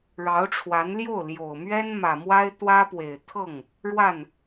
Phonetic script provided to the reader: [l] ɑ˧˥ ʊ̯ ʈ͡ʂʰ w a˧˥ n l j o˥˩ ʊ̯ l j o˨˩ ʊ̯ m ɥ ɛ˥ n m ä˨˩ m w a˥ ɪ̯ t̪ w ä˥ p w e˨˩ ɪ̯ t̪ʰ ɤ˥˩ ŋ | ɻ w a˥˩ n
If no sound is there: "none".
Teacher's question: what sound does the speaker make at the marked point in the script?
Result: ɻ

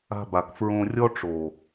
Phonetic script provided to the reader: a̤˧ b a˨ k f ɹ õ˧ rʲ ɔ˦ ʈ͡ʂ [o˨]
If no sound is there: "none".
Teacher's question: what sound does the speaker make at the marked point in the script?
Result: o˨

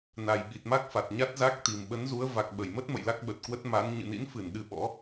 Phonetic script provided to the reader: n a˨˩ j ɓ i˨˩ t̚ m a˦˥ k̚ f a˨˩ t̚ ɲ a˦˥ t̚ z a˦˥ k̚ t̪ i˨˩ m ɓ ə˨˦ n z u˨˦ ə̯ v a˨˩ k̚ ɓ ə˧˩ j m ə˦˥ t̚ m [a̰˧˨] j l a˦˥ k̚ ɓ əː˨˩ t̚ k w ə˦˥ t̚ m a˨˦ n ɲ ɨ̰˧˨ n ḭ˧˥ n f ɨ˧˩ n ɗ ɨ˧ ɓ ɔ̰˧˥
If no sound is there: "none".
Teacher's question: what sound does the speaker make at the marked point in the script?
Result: ə̰˧˨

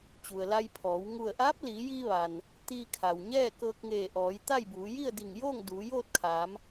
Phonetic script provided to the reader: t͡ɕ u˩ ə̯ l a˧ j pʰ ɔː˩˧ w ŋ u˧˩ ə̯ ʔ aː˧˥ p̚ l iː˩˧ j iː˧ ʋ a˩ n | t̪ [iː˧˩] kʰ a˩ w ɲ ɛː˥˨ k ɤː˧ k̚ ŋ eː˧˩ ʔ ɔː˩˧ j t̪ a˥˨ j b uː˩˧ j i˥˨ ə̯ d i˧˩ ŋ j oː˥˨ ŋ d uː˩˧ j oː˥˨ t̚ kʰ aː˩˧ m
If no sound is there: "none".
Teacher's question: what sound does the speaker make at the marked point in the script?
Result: iː˧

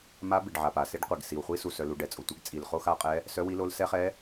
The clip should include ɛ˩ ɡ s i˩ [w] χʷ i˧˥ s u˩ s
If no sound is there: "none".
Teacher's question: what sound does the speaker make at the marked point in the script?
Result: w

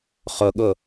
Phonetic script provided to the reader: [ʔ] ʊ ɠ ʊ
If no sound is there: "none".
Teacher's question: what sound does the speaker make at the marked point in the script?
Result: χ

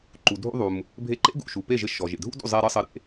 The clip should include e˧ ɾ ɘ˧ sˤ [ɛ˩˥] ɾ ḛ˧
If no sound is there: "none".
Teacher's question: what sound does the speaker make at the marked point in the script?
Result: ɘ˩˥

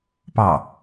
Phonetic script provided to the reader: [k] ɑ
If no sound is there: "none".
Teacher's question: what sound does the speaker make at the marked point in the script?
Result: p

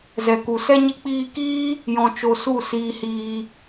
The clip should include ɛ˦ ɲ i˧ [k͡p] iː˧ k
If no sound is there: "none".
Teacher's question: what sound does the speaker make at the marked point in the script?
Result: k͡p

